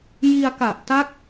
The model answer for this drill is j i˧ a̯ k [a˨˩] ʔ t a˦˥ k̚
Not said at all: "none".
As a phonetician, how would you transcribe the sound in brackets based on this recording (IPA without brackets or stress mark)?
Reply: a˨˩